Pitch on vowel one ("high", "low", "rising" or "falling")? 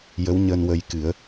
rising